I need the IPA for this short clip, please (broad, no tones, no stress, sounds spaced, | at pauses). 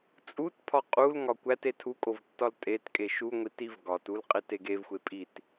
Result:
t͡sʼ u t pʰ ɒ qʼ u l ŋ ɒ kʷ æ t e tʰ u kʼ o v tː ɒ l tʼ e t kʼ e ʃ u ŋʷ i t i v ɡ ɒ t u l qʼ e t e ɡ e v xʷ e pʼ i t